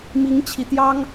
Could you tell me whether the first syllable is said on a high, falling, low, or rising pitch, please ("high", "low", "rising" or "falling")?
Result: rising